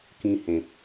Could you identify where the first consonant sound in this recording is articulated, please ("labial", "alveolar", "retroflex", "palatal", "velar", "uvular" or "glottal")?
velar